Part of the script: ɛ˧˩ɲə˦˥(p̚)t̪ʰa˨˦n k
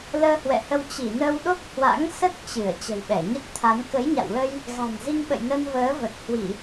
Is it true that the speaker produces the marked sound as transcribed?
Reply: no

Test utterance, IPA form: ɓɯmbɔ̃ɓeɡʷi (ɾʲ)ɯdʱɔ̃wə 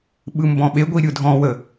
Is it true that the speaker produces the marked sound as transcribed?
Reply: yes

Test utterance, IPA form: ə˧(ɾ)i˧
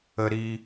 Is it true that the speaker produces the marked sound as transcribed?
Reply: yes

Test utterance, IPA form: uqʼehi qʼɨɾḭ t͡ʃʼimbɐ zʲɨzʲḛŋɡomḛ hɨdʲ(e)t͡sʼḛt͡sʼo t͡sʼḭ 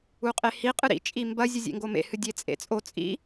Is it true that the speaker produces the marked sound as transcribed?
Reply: yes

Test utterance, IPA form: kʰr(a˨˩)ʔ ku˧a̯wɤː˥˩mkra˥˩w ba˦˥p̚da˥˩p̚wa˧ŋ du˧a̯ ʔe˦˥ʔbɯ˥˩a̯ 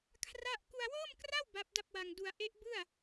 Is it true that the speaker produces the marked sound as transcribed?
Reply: no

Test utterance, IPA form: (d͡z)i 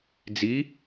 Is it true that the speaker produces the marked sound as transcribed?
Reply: yes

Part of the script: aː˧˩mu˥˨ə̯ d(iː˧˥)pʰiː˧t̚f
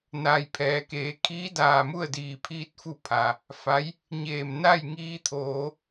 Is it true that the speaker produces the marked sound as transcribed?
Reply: no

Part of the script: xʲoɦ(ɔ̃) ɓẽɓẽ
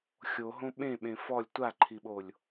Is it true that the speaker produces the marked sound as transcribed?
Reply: no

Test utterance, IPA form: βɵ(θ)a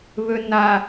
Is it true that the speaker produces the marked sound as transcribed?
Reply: no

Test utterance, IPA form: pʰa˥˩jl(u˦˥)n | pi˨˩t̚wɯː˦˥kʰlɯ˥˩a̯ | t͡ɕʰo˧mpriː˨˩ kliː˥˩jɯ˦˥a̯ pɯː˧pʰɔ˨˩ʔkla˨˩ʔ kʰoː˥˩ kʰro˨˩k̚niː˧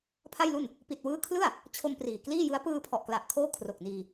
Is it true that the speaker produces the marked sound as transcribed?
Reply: no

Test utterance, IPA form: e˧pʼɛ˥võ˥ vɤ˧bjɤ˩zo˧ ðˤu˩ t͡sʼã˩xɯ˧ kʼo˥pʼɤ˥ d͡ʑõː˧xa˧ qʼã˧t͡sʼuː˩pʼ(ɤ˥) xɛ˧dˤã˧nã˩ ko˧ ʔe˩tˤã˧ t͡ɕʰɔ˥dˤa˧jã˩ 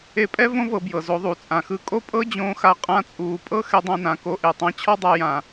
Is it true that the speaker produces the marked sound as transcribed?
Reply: yes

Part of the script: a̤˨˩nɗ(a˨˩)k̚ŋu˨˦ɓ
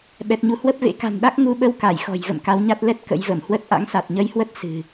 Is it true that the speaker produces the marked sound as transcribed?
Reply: no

